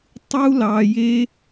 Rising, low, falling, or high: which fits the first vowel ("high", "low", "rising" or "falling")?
high